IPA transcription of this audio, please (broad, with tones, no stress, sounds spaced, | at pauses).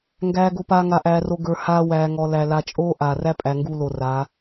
ŋ ɡ æː˨ ɡ o˨ p aː˨ ŋ a˨ ʔ æː˨ r o˨ ɡ ə˞˨ h aː˦ w æː˨ ŋ ɔ˨ l æ˨ l a˨ t͡ʃʼ oː˦ ʔ aː˨ r æ˦ pʼ æ˨ ŋ ɡ uː˦ l o˨ r a˨˦